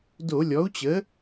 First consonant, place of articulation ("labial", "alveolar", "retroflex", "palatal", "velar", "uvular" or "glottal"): alveolar